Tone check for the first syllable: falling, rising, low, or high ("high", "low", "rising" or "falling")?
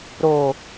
low